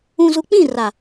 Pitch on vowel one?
low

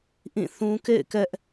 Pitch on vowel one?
falling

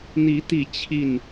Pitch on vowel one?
rising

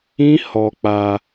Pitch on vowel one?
high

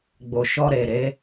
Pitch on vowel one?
low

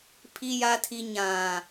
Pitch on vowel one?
low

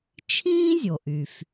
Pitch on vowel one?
high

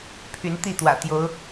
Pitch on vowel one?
rising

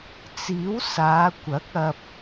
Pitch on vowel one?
rising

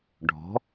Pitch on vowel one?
rising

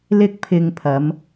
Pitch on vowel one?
high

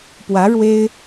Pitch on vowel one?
rising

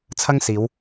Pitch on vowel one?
high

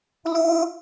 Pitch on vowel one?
high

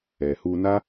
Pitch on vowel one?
low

